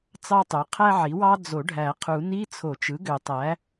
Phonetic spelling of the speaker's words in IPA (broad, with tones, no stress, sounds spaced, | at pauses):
t͡s ɑ˥ tˤ ø˩˥ qʰ æ˥ ʕ i˩˥ w ɑ˥ d͡z o˨˩˦ ɖʱ æ˨˩˦ qʰ u˨˩˦ n i˧˥˧ t͡sʰ o˨˩˦ t͡ʃ ɯ˩˥ ɡ ø˨˩˦ tˤ æ˩˥